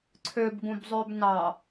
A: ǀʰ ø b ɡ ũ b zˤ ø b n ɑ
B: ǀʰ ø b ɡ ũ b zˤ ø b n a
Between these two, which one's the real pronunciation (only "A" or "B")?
A